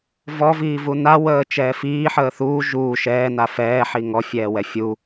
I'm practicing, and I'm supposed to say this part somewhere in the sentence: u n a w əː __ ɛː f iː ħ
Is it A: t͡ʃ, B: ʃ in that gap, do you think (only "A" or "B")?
A